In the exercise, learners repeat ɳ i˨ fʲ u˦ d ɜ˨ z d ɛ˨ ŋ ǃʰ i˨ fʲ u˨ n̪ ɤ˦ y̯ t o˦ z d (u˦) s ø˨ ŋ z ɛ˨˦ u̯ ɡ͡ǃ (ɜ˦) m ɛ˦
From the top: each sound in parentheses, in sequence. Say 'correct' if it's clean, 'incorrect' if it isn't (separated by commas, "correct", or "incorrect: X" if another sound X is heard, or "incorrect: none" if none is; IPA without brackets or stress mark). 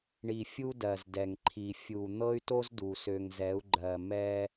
incorrect: u˨, incorrect: ɜ˨